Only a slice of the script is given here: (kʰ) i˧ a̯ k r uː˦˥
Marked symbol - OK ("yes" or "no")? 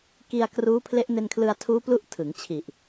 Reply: no